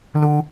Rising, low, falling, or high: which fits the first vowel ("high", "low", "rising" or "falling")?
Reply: high